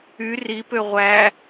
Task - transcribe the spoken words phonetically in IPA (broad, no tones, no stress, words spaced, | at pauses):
y ripø ʁʷæ